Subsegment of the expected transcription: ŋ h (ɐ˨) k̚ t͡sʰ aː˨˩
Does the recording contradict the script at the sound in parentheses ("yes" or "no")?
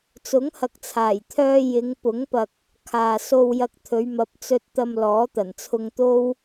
no